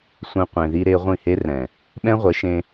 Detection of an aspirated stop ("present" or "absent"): absent